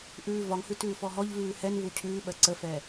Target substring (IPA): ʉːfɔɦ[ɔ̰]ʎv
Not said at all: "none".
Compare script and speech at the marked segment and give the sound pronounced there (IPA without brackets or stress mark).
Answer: ɔ